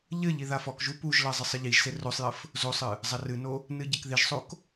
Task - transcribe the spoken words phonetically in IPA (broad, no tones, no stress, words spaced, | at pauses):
ʎɘ ʎiðafɔkʒu puʒlɐ zˤɨsˤɘʎiʒse rosˤjɘf | zosˤɨ | zˤɐrɨno | nɨɟɘkðiʒsˤok